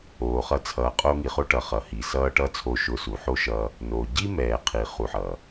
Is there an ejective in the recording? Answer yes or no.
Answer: yes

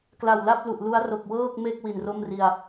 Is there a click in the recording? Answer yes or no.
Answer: no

